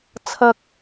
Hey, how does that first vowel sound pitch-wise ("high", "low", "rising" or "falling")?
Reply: low